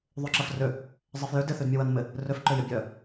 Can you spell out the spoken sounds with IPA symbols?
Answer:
ðˤyǁɐfrʏ | zˤɛfjʏ dɪθydmʲɐwɐn mɪ | rʏfǃʏjə bʲœ

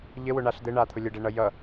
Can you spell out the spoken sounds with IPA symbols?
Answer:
ʎɘwʊɳaɬ d̪ɘɳat̪ʰʊ lʲəɖɛɳʌ jʌ

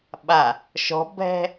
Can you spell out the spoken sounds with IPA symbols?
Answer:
ɓa | ʃɔ̤bʱɛ̤

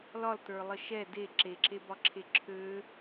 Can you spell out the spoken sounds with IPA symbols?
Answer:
lɒltə˞lˠə ʃɛ de ǁeǁebɒǁʰe ǁʰø

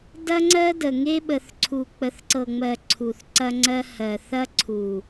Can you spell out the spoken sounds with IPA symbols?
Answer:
dɐ˦ŋ͡ǀɜ˦də˨ ŋe˦ɓə˨θǀʰu˨ k͡pə˨θǀɤ˨ŋ͡mɜ˨ ǀʰu˨θǀɐ˦ŋ͡ǀɜ˦ hɜ˨θɐ˦ ǀʰu˨

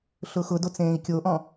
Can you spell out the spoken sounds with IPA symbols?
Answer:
ɬʊxʊdot͡s ẽːi̯kʲoʔɔ̃

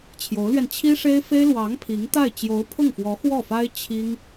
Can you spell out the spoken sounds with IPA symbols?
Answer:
t͡ɕʰjo˧˥ʊ̯lɥɛ˧n t͡ɕʰi˥ʂe˥ɪ̯fe˥ɪ̯ lwɑ˧˥ŋ pʰi˧˥ŋt̪a˥˩ɪ̯ t͡ɕjo˧˥ʊ̯pʰʊ˥˩ŋfwɔ˧˥ xwɔ˥˩fa˥ɪ̯ t͡ɕʰi˥ŋ

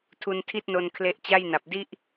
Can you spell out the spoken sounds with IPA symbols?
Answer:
tʰu˧ntʰi˥˩t̚no˧n kʰle˦˥ʔt͡ɕa˥˩jna˨˩p̚ di˥˩ʔ

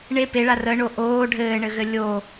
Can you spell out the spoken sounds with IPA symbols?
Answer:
ɳe peɭa rəɳo ʔoː ɖʱɘːɳɘɣɘ lʲo

